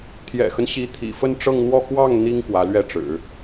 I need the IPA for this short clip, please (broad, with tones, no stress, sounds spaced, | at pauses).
t̪ʰ j ɛ̰˨˩ x ə˦ n ɕ i˧˥ t̪ʰ ḭ˨˩ f ə˥˧ n ʈ͡ʂ ɤ˥˧ ŋ n̪ w ɔ˥˧ k w ɑ˥˩ ŋ n̪ i˥ ŋ k w ä˧˥ l ɥ ɛ˥˩ ʈ͡ʂ ɻ̩˨˩˦